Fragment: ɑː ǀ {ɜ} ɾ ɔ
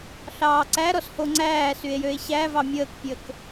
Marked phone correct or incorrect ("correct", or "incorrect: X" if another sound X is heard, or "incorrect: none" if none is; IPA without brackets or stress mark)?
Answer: incorrect: æ